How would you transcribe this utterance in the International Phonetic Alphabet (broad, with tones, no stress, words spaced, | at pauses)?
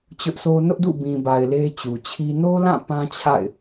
t͡ɕʊ˦ʔsʰo˦ nʊ˦ʔdṵ˦˨ bĩ˨ba˨ɪ̯ le˦t͡ɕu˨t͡ɕʰi˦ no˦lã˦˨ pã˦t͡ɕʰa̰˦˨ɪ̯